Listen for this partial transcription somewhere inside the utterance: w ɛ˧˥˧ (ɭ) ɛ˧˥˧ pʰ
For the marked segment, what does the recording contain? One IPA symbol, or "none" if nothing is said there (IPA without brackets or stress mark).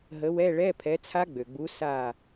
ɭ